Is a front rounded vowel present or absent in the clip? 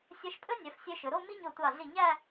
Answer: present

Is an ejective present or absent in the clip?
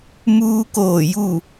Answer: absent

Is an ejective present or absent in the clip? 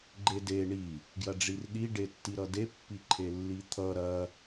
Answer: absent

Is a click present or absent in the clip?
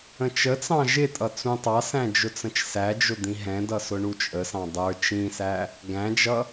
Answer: absent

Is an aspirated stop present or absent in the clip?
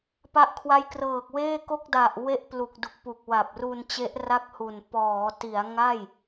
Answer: present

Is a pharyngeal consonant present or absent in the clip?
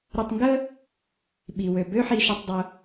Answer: present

